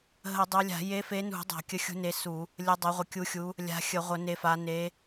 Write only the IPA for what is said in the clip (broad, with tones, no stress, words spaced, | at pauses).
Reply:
ɦə˧˩˧dˤœ˨˦lʲa̤˧˩˧ je˨˦fe˨˦nṳ˧˩˧ dˤa̤˧˩˧kʲə˨˦xʲṳ˨˦ne˨˦ su˧˩˧ | lʲə˨˦dˤa˨˦ʁʷə˨˦ kʲu˨˦xʲu˨˦ | lʲa̤˨˦xʲə˧˩˧ ʁʷə˧˩˧ne˨˦fa˨˦ ne˨˦